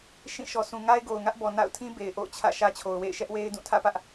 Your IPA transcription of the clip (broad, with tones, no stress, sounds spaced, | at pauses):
ʃ ĩ˦˨ ʃ ɔ˨ s ũ˨ ŋ a˦ ɪ̯ ɡ o˨ ʊ̯ ŋ ä˦ ʔ b ɔ˨ n a̰˦˨ ʊ̯ tʰ ĩ˦ b e˨ ɪ̯ ʔ o̰˦˨ ʊ̯ t͡ɕʰ ä̰˦˨ ʃ ä˦ t͡ɕʰ o˨ ʊ̯ w ḛ˦˨ ɪ̯ ʃ ɛ˦ ʔ w e˦ ɪ̯ d ũ˦˨ tʰ ä̰˦˨ p ä˦ ʔ